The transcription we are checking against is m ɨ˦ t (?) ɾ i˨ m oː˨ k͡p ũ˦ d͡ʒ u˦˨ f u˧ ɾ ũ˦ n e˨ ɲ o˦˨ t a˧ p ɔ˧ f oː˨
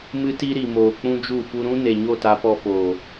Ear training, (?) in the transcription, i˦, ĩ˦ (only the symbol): i˦